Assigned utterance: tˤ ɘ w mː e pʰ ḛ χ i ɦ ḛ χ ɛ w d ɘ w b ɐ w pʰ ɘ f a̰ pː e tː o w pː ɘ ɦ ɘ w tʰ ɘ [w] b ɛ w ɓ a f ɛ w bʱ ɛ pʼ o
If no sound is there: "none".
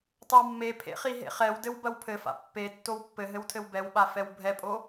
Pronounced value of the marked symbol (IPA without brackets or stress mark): w